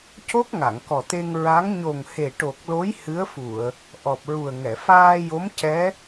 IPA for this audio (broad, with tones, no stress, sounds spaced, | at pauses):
c o˦˥ k̚ ŋ a˨˩˨ ŋ k ɔ˨˩ t̪ e˧ ŋ ɹ a˧˥ ŋ ɲ o˨˩ ŋ h e˨˩ ʈ o˨˩ k̚ l o˧˥ j h ɨ˧˥ ə̯ f u˨˩˨ ə̯ | ʔ ɔ˨˩ p̚ ɹ u˨˩ ə̯ ŋ ɛ˨˩˨ f aː˧ j o˧˥ m c ɛ˧˥